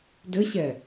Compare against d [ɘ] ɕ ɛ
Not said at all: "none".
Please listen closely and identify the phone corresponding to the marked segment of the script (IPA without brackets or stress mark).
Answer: ɘ